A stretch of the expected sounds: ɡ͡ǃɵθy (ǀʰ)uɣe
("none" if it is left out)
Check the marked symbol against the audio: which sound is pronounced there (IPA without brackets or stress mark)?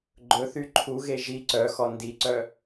ǃʰ